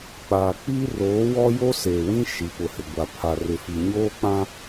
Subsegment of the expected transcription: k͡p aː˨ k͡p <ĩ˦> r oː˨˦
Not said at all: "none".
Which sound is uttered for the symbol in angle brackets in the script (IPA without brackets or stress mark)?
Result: i˦